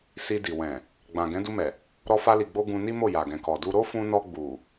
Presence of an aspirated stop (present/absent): absent